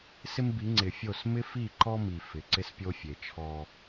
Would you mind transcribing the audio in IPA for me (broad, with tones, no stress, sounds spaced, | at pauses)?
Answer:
s ɪ˦ m b i˨˦ ŋ͡ǀ ɪ˨ fʲ o˦˨ s m ɪ˦ f i˦˨ ǃ ɔ˦ m i˨ f ɪ˨ ǀ ɪ˦ s pʲ o˦ fʲ e˨ t͡ʃʰ ɔ˦